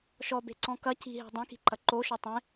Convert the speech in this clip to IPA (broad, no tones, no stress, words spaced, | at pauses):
ʃɔbe̤ǀɔ̃ kɐ ci̤ɦe̤ dˤẽki̤ǃɐ ǃoʃɔ tˤẽ